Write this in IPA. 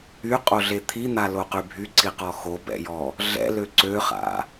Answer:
y qʼ o ɮ e t̪ʰ i n̪ a l o q y bʱ y ǀ i q ɔ x o b ɛ̰ j ɔ | ɮ ɛ̰ l ø ǀ ø χ a̰

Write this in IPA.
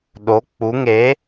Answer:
ɗ o k͡p u ŋ e

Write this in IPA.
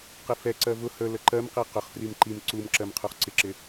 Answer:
q ɪ f ɛ ǀ ɜ v ʊ h ə l ə ǃ ɜ m q i q ʊ χ f r i m ǃ i m ǀ u m ǁ ɜ m qʰ u χ ǀ ɪ ǁ ɪ

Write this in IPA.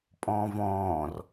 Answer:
pʼ ɔ̃ː v ɔ̃ː r

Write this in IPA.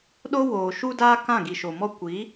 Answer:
ɗ o˦ w oː˨ ʃ u˦ d aː˦ k ã˦˨ ɡ i˨ ʃ o˨ m ɔ˦ kʷ i˨˦

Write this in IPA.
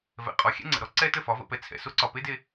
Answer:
v ɛ̰˨ qʼ ɔ˨ xʲ ɛ̰˦ ŋ͡ǀ ə̰˨ ɾ ɔ˦ ǀ ɛ˦ t ə˦˨ f ɒ˨˦ v ə̰˧ p ɛ˧ t͡sʰ ɛ̰˨ s o˦ ǀ ɒ˨ p e˦ d e˧

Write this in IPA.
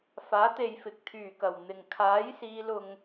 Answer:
f aː˨˥ t̪ e˨ j f ɪ˨ k̚ t̪ʰ yː˨˩ k ɐ˨˩ w n̪ ɪ˨˩ ŋ kʰ aː˨˥ j s iː˨˧ l ʊ˨ ŋ

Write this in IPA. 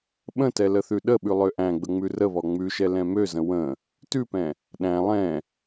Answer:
ɓ ə̃ t ɛ l ə θ ʉ ɗ ə ɓ ʉ lˠ ø ʔ æ̃ ɡ͡b ə ŋ͡m ʉ r ə β ɔ ŋ͡m ʉ ʃ ɛ l ɛ̃ m ø z ə̃ w ə̃ | t ʉ p ɛ̃ | ɗ æ̃ lˠ ɛ̃

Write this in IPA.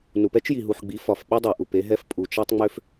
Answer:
n u˨ p ɛ˦ t͡ʃ j i˨ ɦ u˨ ħ ɡ͡b i˨˦ f ɒ˨ f ɓ i˦ dˤ ɛ˨ ʔ u˨ p e˦ ɦ ɛ˦ f pʼ u˨ t͡ʃ ɛ˦ tˤ ŋ͡m ø˦ f

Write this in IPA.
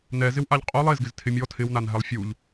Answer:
n ɛ z ɪ w ʔ a ʎ qʼ o lˠ e z ɡ ɪ z tʰ ɪ mʲ ɔ tʰ ɪ w n a n ɦ ɛ lˠ fʲ u ʎ

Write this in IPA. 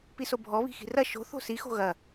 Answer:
p i s o bʱ ɔ β i̤ x i̤ r ɐ ʃ o̤ θ o̤ s i x o̤ ɣ ɐ

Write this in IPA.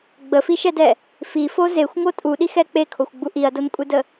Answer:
ɡ͡b ə f i ʃ ɛ d ɛ | f i f o z e xʷ ŋ o tʼ u ɗ i x ɛ k͡p e kʰ o xʷ ɡ͡b u ʔ i ɐ̯ d o n kʷʼ e d ə

